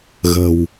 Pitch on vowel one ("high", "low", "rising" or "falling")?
low